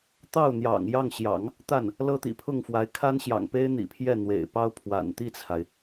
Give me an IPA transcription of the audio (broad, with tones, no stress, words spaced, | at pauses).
t̪ɑ˥˩ʊ̯n̪jɑ̰˨˩ŋjɑ˥˩ŋɕjɑ̰˨˩˦ŋ | t̪a˥˩n | lɤ˥t̪ḭ˨˩ pʰʊ˥˩ŋfwa˧˥ɪ̯ kʰa˥n ɕjɑ̰˨˩ŋpe˥ɪ̯n̪ḭ˨˩pʰjɛ˥˩ n̪wḛ˨˩ɪ̯pɑ˥ʊ̯pʰwa̰˨˩n t̪i˥˩t͡sʰa˩ɪ̯